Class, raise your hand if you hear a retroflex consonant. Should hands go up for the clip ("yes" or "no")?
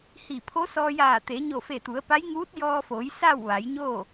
no